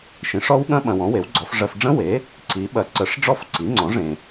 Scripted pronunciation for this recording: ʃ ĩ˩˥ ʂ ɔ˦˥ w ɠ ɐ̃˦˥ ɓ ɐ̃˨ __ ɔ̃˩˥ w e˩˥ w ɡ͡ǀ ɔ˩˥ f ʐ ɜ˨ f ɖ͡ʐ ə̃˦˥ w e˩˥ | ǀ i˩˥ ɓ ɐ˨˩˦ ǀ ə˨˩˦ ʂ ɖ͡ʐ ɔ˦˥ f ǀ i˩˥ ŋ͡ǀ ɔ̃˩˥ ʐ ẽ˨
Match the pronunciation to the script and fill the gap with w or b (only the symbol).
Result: w